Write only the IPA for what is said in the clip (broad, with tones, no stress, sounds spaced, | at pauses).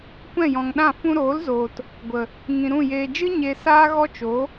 kʷ ɛ̃˦˨ j ɔ̃˨ ŋ ɗ ã˦˨ f ũ˧ ɾ oː˨˦ l z oː˨ t | ɡʷ ə˨ | ŋ ĩ˨ ɾ ũ˦˨ j eː˨ d͡ʒ ɨ˦ ɲ e˧ s aː˦ ɣ ɔ˦ t͡ʃ o˨˦